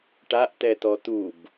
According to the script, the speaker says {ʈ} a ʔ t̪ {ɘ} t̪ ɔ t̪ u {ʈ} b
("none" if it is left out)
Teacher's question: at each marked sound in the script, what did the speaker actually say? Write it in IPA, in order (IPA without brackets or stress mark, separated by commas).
ʈ, ɛ, none